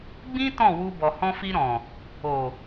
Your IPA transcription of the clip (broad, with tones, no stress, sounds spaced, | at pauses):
ɡ͡b ĩ˦ t ɔ̃˦˨ w u˧ b ɔ˨ h ɔ̃˧ f i˧ ɾ ɔ̃˨ | o˨